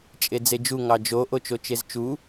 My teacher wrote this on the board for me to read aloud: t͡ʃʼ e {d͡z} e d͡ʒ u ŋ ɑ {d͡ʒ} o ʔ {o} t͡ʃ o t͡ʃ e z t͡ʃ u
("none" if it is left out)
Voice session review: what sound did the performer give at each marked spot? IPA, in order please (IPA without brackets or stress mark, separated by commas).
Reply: d͡z, d͡ʒ, o